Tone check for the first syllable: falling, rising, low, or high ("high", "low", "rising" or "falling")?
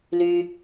low